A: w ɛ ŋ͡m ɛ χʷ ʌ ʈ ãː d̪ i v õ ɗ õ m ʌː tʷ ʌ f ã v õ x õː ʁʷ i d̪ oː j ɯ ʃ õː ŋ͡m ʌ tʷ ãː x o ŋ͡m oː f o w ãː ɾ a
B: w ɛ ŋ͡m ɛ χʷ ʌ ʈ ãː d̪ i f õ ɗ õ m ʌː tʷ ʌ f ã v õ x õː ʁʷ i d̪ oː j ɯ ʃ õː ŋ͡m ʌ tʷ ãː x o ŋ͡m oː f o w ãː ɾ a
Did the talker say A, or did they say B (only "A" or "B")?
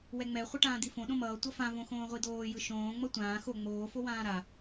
B